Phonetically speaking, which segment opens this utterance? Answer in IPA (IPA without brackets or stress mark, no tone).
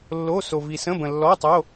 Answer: lː